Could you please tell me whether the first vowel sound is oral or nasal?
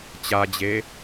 oral